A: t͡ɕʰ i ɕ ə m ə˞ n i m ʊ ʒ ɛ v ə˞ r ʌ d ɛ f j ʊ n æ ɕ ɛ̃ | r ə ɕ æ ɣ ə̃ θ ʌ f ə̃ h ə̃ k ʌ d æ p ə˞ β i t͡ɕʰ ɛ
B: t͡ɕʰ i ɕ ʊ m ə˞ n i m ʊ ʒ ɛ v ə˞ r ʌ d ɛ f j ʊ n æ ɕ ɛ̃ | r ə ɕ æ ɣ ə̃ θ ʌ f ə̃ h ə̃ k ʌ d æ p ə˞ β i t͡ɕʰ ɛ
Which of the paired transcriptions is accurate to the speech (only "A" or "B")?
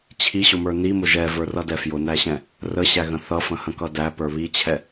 B